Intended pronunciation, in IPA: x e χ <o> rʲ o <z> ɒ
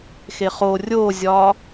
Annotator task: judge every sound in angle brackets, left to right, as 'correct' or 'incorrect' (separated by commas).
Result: correct, incorrect